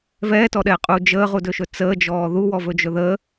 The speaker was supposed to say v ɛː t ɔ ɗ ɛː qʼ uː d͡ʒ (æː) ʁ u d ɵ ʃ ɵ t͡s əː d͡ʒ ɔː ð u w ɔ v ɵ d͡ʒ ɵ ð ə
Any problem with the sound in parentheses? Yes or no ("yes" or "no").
yes